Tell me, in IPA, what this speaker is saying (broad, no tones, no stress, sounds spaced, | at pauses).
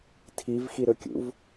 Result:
tʰ i v x i ɾ ɵ kʲ ṵ v